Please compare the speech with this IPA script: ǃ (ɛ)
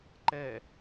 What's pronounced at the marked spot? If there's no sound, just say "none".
ɛ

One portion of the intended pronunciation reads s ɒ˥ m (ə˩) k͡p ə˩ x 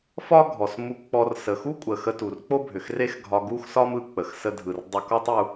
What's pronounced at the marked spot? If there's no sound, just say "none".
ɯ˩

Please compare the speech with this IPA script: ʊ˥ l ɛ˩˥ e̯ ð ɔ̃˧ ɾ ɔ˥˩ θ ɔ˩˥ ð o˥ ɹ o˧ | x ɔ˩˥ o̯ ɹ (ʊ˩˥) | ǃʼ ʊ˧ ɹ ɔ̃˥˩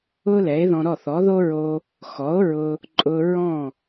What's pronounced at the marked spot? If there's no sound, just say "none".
ʊ˧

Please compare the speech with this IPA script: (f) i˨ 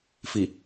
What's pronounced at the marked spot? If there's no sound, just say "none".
f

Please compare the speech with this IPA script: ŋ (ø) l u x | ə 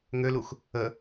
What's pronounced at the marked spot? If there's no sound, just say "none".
ø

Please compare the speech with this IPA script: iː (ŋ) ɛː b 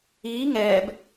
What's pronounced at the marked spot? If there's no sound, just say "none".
ŋ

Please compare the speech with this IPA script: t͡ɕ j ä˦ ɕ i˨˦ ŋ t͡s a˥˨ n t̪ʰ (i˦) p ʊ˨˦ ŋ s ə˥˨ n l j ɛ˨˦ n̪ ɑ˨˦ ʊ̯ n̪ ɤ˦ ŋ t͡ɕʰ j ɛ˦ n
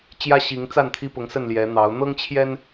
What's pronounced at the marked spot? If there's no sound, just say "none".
i˦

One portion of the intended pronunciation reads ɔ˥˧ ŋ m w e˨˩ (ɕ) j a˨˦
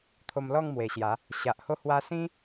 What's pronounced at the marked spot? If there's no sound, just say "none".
ɕ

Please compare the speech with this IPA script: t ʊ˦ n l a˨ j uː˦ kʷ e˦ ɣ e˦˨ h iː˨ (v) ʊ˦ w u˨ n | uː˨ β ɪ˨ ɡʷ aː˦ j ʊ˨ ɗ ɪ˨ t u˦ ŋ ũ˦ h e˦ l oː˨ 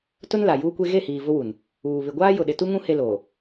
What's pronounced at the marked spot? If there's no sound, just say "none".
v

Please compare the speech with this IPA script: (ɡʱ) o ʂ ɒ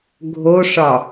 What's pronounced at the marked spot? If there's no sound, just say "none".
ɡʱ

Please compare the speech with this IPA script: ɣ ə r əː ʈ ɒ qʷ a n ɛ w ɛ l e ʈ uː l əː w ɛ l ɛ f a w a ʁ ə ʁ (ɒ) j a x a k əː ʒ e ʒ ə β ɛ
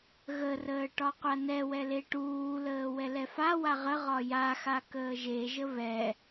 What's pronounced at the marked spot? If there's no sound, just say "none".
ɒ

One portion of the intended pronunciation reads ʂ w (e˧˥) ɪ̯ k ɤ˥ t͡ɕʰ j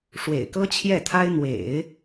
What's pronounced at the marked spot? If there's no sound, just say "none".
ḛ˨˩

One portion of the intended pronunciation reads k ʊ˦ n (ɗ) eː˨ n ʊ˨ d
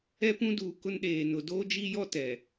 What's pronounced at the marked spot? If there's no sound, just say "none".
ɗ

